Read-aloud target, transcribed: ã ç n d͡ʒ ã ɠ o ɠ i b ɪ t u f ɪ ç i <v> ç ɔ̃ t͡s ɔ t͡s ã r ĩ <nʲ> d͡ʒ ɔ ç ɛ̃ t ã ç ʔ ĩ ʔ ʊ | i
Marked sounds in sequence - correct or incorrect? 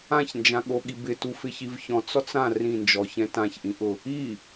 correct, incorrect: n

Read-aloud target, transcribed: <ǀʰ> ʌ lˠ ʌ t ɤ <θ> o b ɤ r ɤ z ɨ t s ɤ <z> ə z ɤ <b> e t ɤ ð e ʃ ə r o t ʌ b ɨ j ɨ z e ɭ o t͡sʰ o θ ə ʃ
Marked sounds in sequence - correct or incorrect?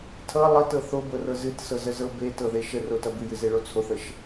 incorrect: tʰ, correct, correct, correct

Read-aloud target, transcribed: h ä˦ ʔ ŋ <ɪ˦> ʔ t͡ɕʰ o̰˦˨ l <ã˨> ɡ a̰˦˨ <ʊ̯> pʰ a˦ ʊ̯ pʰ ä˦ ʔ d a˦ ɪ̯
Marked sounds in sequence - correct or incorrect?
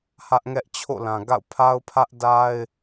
incorrect: ɛ˦, correct, correct

